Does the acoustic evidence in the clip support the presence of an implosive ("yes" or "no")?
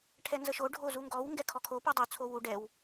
no